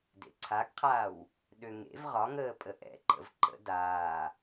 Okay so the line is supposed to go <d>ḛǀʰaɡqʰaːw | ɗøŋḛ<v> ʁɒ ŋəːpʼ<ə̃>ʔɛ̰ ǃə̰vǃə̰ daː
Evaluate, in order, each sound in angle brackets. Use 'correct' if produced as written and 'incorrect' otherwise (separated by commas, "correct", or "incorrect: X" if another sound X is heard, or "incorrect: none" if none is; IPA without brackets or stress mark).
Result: correct, correct, incorrect: ə